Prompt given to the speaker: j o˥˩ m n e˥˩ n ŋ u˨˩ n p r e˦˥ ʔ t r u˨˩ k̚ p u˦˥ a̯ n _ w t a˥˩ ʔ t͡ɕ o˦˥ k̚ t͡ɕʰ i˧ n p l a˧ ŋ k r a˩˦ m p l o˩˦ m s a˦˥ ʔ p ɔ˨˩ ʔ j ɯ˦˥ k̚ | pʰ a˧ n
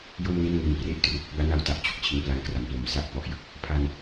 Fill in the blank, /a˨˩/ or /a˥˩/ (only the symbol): a˥˩